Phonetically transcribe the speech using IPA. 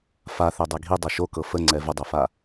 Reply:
f a θ ɛ dˤ ɛ ɡʱ i dˤ ɤ ʃ o k ɤ f ə ŋ͡ǀ ɛ v ə dˤ ɛ f a

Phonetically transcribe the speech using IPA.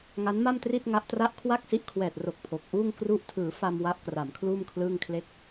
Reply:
ŋ a˦˥ n m a˥˩ m t r i˥˩ t̚ ŋ a˦˥ ʔ t r a˥˩ ʔ kʰ w a˥˩ k̚ s i˦˥ ʔ kʰ w ɛː˨˩ t̚ r o˨˩ k̚ pʰ o˨˩ k̚ ʔ uː˥˩ ŋ k r u˥˩ ʔ tʰ ɯː˩˦ f a˧ m w a˦˥ ʔ k r a˩˦ m kʰ l uː˥˩ m kʰ l ɯː˥˩ ŋ kʰ l e˥˩ k̚

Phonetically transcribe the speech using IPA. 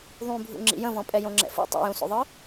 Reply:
ðˤ ũ bʱ ṵ ŋ͡ǁ ḭ j ə̃ v ɔ̃ pʼ ɛ j õ ŋ͡ǁ ɛ̰ f ṵ tˤ ṵ j ũ s o̰ ðˤ ɯ

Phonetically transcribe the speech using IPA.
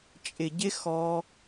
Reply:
t͡ʃʼ ɪ˨ ɟ ɪ˧ x ɔ˧

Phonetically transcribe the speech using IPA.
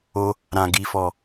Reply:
o˧ | ɾ ã˨ ɡ i˨ f ɔ˨

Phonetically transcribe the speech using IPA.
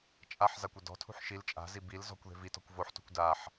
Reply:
t͡ʃʼ a ħ z a kʷ ɛ d ɔ̤ tʰ ṳ ħ ʃ i l t͡ʃʼ a̤ z i b i l z ɔ̤ kʷ ð e̤ v i t ɔ̤ kʷ v o ħ t ṳ kʷ d a ħ

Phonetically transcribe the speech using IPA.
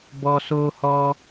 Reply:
b ɔ˨ s o˧ h ɔ˧

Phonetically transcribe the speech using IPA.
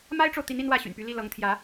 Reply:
m a˥ ɪ̯ ʈ͡ʂ o˨ ʊ̯ t̪ i˧˥ n i˥ n w ä˥˩ ɕ y̰˨˩ n p y˧˥ l i˥˩ l ɤ˧˥ ŋ t̪ʰ j ä˧˥

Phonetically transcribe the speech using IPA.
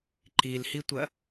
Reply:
ǃ i l h i tʷ ɐ

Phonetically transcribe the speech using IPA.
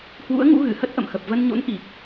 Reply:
h w ṵ˧˥ ə̯ ŋ ṵ˧˥ ɣ ɨ˧˩ h ə˦˥ t̚ ʔ ə̰˧˨ m x ə˨˩ p̚ v ə˧ n ɲ o̰˧˥ n ʔ i˨˩ k̚

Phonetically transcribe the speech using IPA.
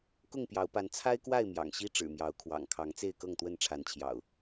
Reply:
k ʊ˥˨ ŋ p j ɑ˨˦ ʊ̯ p a˨˦ n t͡sʰ a˦ ɪ̯ k w a˥˨ ɪ̯ m j ɑ̰˨˩ ŋ ɕ i˦ ʈ͡ʂ ɻ̩˨˩ m j ɑ˨˦ ʊ̯ kʰ w ɑ̰˨˩ ŋ kʰ ɑ˨˦ ŋ t͡s e˥˨ ɪ̯ k ɤ˥˨ ŋ t̪ w ə˥˨ n ʈ͡ʂʰ a˨˦ n t͡ɕʰ j ɑ̰˨˩ ʊ̯

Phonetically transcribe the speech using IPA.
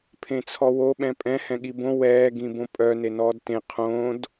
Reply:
pʰ ẽ t͡sʰ ɔ w o ɓ ɛ̃ pʼ ɛ̃ h ɛ̃ ɠ i b õ w ɛː ɡ ĩ b õ pʼ œ n e n ɔː d t ẽ qʰ õ d

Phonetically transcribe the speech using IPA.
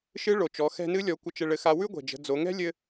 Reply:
ʃ ɨ˧˥ ɭ o˩ t͡ʃ ɔ˩˧ x ɛ̤˧ n ɨ˧˥ lʲ ɔ˩˧ kʷ ə˧ t͡ʃ ɘ˧ ɭ ɘ˧ x a˧ w ʉ˥ ɡʷ ɛ̤˩ d͡ʒ ə̤˩˧ d͡z o˩˧ ŋ ɛ̤˥ lʲ ɘ˥

